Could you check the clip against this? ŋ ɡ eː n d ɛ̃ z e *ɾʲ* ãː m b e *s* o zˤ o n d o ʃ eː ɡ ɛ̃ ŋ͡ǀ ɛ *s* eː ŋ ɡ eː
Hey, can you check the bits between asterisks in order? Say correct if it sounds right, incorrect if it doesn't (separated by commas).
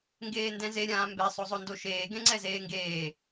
correct, incorrect, incorrect